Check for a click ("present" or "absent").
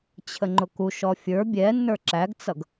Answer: present